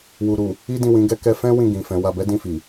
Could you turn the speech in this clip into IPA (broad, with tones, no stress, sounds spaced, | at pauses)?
w u˨ ɾ u˨ | i˦ d ĩ˦˨ w ĩ˨˦ ɡ ɛ˦ k ɛ˧ f ɛ̃˦ w ĩ˦˨ ɡ ĩ˨ f ɛ̃˨˦ w a˧ b ɛ˦ d ĩ˦˨ f i˨